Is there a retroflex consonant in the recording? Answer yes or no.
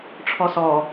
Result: yes